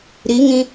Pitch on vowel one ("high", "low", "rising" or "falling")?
rising